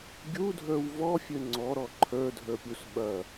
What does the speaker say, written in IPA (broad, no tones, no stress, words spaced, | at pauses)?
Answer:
ɡʲudʱə˞w vɔfʲø ŋ͡ǀɔɾɔ ǃʰə˞dʱə˞pʲus ɓɐ